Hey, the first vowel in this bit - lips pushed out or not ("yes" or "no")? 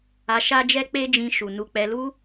no